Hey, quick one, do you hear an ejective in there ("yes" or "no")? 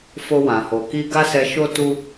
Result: no